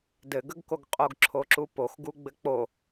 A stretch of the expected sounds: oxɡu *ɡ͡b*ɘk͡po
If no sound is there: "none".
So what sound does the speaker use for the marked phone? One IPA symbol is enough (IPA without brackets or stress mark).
ɡ͡b